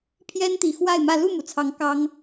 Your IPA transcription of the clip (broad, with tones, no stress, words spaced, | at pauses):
pʰjɛ˦nt̪i˨˩xwa˥˨ɪ̯mä˥˨ lu˥˨mu˩t͡sʰɑ˨˦ŋ kɑ˦ŋ